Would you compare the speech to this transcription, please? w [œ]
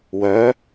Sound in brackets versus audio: correct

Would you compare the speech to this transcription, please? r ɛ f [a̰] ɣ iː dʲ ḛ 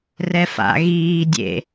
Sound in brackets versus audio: correct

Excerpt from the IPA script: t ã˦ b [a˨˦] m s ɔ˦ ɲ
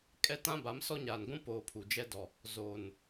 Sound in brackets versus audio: correct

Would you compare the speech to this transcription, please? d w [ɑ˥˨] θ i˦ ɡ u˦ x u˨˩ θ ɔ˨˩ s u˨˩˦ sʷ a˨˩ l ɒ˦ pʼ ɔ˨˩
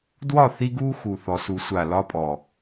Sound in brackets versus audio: incorrect: ɒ˥˨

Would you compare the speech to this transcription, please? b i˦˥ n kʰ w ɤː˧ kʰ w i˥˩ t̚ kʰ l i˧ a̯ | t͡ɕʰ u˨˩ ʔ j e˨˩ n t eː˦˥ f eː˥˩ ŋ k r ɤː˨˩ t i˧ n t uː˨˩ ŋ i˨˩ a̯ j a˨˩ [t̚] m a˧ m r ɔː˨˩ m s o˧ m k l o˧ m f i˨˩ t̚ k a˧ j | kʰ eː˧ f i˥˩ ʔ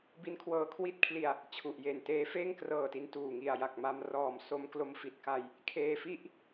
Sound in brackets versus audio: incorrect: k̚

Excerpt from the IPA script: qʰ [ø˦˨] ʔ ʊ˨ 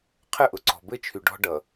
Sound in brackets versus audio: incorrect: ə˦˨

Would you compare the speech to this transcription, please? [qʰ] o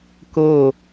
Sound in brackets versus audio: incorrect: k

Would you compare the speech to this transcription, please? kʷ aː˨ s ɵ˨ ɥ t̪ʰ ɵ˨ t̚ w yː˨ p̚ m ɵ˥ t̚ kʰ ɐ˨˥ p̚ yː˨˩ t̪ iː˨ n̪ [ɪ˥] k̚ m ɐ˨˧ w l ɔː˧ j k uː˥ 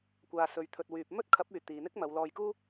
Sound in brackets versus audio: correct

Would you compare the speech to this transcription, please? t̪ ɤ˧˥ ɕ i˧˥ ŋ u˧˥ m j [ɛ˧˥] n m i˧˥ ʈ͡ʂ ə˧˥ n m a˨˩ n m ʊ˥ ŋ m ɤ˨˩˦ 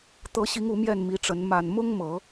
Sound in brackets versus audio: incorrect: ɛ˥˩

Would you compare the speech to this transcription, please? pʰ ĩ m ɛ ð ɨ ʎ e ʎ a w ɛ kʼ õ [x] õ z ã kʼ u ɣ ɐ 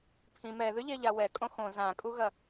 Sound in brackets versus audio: correct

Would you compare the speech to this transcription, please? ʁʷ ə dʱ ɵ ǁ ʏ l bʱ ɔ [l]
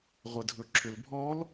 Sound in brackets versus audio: correct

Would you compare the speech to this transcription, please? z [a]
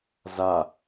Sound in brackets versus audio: correct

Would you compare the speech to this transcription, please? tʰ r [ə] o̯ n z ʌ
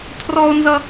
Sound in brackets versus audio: incorrect: ɔ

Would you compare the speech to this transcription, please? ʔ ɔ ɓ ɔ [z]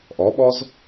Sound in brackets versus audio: correct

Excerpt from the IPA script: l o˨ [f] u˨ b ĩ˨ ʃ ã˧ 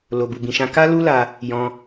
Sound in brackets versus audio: incorrect: b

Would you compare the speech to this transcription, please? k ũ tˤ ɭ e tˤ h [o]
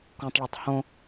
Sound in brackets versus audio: incorrect: õ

